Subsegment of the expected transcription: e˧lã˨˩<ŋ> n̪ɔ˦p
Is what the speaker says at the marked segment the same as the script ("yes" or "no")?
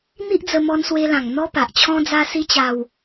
yes